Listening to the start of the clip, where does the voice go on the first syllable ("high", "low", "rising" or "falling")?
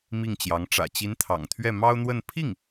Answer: falling